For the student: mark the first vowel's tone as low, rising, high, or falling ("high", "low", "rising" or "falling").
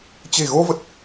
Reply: low